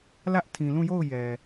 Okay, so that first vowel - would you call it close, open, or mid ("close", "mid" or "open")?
open